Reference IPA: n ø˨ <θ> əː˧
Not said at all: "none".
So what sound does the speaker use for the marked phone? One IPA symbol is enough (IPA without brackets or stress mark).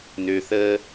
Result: θ